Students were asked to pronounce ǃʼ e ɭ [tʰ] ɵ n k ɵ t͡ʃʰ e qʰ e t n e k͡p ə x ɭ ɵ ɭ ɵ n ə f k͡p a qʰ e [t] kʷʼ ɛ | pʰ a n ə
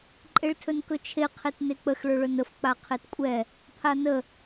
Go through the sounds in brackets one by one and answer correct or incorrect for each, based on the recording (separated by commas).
correct, correct